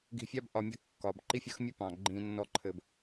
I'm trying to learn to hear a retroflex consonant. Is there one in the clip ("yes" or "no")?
no